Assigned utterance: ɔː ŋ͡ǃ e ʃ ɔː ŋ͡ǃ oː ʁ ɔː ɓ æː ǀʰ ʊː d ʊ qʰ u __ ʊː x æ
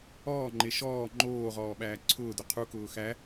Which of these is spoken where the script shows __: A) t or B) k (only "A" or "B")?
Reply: B